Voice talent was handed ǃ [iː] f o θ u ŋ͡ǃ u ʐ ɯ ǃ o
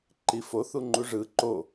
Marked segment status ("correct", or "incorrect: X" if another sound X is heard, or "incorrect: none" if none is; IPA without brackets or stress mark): incorrect: i